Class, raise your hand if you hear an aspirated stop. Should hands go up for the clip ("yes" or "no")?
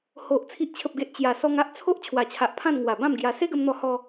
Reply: yes